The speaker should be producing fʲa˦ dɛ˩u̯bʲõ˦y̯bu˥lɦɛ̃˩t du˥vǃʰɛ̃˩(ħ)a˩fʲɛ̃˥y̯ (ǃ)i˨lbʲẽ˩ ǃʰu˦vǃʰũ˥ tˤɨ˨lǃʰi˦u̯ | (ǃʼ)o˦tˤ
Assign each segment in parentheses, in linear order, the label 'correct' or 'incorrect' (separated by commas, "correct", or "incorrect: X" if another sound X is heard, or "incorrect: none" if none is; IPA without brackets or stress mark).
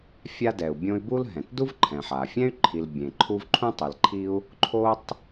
correct, incorrect: ǃʰ, incorrect: ǃʰ